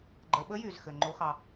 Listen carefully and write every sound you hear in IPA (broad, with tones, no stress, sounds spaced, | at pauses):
ɡ͡ǃ ə˩˧ ɓ ə˧˥ j y˩ z x ɘ˩ ŋ͡ǃ o˧˥ x ɑ˧